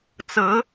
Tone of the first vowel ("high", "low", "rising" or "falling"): rising